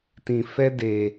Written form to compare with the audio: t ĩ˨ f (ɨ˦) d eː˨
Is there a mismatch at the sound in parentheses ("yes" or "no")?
yes